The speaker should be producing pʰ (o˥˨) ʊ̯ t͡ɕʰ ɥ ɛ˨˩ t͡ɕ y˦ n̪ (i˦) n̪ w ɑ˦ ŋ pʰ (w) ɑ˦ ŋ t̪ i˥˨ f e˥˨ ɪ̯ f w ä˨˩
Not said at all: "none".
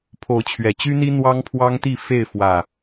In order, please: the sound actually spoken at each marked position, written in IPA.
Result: o˨˦, i˦, w

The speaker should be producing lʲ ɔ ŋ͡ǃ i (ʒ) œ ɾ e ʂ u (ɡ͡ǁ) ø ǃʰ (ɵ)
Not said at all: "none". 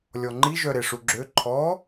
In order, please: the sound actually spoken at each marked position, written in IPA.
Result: ʒ, ɡ͡ǁ, ɔ

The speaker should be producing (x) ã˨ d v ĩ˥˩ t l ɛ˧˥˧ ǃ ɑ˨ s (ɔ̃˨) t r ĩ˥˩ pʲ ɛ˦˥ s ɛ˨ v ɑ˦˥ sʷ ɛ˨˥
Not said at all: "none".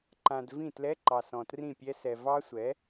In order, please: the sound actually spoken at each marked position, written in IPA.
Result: ǃ, ɔ̃˨

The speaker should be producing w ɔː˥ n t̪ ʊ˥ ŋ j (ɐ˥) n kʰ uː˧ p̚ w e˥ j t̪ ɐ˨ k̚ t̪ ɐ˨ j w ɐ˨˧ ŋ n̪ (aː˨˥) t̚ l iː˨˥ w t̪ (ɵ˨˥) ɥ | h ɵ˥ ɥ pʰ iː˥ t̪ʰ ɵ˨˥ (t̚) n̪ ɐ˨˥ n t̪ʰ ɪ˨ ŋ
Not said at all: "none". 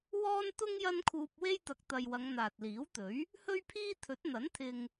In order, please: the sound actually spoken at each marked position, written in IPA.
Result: ɐ˥, aː˨, ɵ˨˥, t̚

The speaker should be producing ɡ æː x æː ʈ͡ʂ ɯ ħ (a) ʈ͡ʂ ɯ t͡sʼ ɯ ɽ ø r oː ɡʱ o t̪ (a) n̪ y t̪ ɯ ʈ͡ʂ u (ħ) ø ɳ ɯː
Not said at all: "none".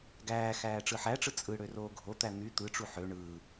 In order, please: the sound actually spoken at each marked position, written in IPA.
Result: æ, æ, ħ

